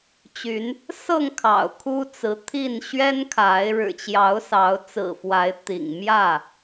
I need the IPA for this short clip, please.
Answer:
t͡ɕy˨˦n | sɤ˥˨ŋ kʰɑ̰˨˩ʊ̯kʰu˦t͡sɹ̩˨˦ t̪ʰi˥˨n ɕɥɛ˦nkʰa˨˦ɪ̯ ɻɻ̩˨˩t͡ɕjɑ˨˦ʊ̯ sɑ˨˦ʊ̯ t͡sɹ̩˨˩fwa˨˦ɪ̯t̪ḭ˨˩ŋ mjä˥˨

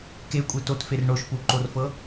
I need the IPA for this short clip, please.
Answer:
ke kʷʼetotfer ɳoʃpuǃorfɤ

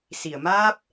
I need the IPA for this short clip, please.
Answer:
si˨˩˨ə̯ maː˦˥p̚

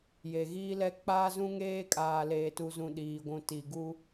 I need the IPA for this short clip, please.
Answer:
je˨ɣiː˦lɛ˦ k͡paː˦zũ˦ŋeː˦kʼaː˨ leː˨tu˨zũ˨ ɗiː˨ɡʷũ˨ti˨ ɡu˦

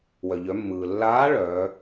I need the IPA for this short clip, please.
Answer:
wœ˩ʎœ˩˧mːɯː˩ lːaː˧˥ ɭœː˩˧

